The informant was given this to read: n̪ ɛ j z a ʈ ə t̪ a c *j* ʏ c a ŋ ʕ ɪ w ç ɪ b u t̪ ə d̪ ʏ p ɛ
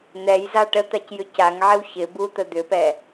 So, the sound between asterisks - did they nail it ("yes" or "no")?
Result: yes